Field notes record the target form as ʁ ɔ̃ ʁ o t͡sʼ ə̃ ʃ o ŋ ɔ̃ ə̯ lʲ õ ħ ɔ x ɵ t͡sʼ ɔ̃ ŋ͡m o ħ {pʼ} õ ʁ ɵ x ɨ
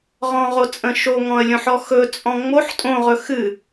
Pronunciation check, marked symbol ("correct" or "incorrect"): incorrect